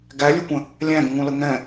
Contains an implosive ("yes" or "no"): no